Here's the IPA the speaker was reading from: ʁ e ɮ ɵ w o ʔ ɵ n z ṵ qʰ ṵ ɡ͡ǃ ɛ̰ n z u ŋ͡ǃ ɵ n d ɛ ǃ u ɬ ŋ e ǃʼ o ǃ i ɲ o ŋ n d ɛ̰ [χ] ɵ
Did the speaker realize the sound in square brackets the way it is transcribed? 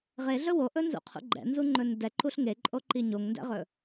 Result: no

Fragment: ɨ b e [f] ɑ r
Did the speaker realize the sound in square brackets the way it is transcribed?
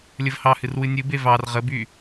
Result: no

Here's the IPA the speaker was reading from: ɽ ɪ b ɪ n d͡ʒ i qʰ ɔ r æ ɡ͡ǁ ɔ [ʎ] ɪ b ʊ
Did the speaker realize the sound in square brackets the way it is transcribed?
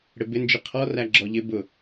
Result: yes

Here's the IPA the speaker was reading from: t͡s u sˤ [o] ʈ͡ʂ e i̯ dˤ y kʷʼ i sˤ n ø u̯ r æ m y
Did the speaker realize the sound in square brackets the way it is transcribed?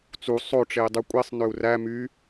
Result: yes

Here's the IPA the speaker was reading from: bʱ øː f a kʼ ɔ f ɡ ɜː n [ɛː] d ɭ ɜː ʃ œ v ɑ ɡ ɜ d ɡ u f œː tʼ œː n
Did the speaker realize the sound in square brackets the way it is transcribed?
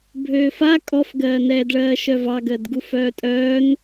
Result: yes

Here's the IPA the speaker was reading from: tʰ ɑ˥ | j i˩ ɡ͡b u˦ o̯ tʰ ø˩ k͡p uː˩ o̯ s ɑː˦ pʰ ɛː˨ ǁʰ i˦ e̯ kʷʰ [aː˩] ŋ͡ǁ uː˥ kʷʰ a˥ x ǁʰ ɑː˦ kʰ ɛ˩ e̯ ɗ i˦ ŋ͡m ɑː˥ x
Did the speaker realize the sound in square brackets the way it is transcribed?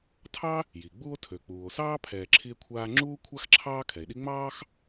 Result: no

